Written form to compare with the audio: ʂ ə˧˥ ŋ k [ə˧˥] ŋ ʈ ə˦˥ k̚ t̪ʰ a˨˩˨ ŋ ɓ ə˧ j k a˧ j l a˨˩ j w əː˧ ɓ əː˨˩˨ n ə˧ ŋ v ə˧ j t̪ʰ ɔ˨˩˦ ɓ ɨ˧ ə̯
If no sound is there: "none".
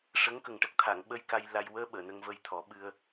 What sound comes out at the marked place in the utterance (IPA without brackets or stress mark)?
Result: ə˨˩